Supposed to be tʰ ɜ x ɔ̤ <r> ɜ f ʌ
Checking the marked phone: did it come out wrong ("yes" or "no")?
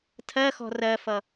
no